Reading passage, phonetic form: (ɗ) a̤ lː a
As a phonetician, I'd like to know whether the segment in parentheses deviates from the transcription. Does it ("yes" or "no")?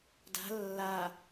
yes